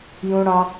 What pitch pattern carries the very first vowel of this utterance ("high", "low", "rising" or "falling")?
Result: high